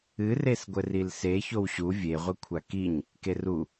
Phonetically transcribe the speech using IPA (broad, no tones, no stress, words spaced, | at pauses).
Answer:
ɨresɡʷɘ rilse çowɕu vʲeʁʷɘkʷʰa kiɲ | keru